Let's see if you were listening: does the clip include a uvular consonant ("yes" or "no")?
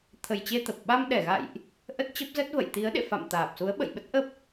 no